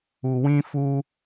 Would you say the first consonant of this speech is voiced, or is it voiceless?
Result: voiced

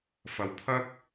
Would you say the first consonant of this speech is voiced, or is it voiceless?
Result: voiceless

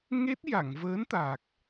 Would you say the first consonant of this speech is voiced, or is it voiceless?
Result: voiced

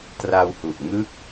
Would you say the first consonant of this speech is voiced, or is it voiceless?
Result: voiceless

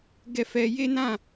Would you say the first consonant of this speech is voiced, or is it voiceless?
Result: voiced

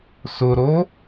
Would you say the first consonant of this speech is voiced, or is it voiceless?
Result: voiceless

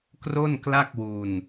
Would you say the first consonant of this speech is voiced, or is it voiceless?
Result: voiceless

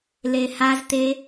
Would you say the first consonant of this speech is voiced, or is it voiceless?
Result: voiced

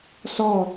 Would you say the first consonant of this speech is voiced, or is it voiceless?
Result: voiceless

